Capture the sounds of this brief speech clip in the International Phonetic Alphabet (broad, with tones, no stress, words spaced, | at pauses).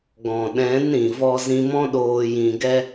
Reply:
ɡɔ̃˨ɗɛ̃˨˦n ɾĩ˨vɔ˦ zĩ˧mɔ̃˦ɗoː˧ jĩ˧ɡɛ˦